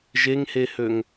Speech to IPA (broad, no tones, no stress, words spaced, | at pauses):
ʒeŋhehøŋ